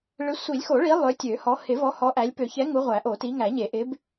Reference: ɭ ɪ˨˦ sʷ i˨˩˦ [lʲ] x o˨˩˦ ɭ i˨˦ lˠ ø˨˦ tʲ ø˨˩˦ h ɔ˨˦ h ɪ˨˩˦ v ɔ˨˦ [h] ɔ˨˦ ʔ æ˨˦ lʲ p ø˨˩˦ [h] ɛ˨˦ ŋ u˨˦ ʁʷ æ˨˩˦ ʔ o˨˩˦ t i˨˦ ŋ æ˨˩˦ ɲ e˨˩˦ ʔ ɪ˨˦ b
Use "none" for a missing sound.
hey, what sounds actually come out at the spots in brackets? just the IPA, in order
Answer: lʲ, h, ç

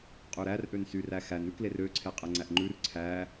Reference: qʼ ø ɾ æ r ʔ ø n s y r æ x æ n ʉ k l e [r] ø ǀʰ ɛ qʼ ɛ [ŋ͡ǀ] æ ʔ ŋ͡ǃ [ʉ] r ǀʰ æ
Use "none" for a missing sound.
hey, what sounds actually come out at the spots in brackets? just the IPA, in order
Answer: r, ŋ͡ǀ, ʉ

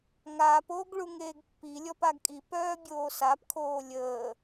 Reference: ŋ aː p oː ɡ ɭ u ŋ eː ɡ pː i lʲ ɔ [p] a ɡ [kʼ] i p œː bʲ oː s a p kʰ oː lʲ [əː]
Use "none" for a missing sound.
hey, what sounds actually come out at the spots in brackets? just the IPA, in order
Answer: p, kʼ, əː

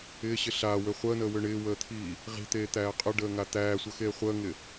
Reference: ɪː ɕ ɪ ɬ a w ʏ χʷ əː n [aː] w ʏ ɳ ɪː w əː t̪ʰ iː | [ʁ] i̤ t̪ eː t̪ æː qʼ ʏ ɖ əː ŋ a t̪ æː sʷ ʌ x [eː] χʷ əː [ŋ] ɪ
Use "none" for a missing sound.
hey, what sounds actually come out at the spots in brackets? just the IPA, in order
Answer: əː, ʁ, eː, ŋ

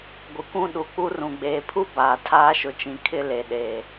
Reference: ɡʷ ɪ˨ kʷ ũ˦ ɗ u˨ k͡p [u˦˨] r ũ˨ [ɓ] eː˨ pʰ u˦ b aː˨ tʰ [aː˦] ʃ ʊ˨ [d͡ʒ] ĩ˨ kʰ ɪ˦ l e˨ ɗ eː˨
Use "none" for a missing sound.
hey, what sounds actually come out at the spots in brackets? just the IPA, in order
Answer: u˦, ɡ͡b, aː˦, t͡ʃ

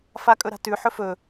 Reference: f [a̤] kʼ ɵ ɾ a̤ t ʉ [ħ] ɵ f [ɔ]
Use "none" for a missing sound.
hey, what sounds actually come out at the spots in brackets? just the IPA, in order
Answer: a, ħ, ɵ

